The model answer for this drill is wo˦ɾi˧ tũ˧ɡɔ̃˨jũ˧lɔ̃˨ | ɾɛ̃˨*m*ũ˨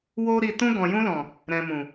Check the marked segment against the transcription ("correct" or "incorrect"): correct